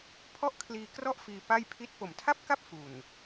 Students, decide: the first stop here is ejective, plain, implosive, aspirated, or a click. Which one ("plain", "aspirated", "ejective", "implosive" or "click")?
aspirated